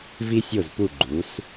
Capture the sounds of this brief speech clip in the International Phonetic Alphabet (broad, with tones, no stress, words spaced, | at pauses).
vi˧sʲo˧˩zpu˧˩ ɡ͡ǃu˩˧s